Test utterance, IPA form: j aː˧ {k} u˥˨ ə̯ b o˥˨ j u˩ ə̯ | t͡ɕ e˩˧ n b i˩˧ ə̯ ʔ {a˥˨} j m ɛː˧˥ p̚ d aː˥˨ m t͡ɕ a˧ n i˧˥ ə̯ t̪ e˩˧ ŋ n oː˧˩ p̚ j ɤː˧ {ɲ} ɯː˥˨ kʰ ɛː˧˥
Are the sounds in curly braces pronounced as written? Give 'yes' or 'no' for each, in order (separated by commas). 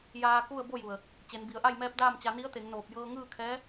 yes, yes, no